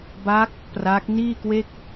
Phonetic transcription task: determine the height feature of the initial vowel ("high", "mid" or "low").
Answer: low